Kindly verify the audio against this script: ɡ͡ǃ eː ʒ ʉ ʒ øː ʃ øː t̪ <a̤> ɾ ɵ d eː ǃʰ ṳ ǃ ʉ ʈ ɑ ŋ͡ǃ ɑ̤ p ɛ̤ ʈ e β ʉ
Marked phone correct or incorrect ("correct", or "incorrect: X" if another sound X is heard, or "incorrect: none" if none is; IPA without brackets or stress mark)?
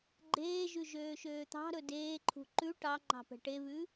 incorrect: ɑ̤